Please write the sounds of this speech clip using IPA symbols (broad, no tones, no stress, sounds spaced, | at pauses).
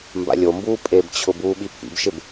m b a̰ lʲ o m b uː pʼ e b t͡ɕʰ ʊ b uː ɓ i pʰ ḭ b ʃ ɪ b